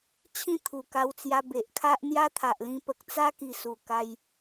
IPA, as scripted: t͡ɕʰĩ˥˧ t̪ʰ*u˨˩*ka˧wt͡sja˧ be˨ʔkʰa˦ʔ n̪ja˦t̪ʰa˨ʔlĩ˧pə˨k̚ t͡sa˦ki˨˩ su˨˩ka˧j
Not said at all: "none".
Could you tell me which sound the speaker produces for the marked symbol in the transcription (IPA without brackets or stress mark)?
u˨˩